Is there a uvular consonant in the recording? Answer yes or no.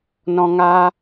no